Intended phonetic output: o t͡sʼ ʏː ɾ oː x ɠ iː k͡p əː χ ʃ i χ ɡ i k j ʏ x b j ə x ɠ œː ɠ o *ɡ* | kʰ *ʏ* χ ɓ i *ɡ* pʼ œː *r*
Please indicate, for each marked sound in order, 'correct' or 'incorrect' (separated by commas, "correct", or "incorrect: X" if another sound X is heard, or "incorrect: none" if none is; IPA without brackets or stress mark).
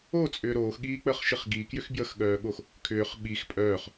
incorrect: x, incorrect: ʏː, incorrect: x, incorrect: χ